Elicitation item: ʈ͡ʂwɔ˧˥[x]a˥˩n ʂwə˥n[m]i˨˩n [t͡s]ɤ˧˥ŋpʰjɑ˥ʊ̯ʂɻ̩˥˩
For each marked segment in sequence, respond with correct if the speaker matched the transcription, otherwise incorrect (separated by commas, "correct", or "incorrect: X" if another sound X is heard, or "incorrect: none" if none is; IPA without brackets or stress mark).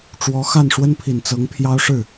correct, incorrect: pʰ, correct